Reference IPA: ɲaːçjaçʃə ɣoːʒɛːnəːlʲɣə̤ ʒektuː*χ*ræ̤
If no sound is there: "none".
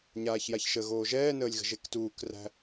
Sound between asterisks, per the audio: k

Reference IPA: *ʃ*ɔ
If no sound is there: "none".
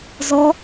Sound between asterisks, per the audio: z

